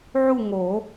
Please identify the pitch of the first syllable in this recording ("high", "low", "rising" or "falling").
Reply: falling